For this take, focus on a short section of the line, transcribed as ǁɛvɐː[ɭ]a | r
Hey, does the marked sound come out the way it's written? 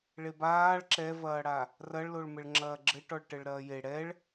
no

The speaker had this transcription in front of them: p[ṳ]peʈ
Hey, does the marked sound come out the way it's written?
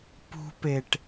yes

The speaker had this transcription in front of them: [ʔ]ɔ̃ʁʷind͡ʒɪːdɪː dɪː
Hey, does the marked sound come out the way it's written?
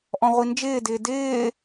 yes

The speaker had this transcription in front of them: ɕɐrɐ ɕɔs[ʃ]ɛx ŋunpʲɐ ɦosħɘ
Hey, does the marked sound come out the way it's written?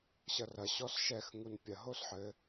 yes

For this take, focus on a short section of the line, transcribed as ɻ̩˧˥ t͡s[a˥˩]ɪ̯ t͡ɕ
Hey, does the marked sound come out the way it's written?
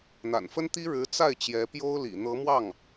yes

